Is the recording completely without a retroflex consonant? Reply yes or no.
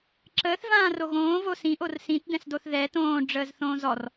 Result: no